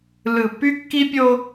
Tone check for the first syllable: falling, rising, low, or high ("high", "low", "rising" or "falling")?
low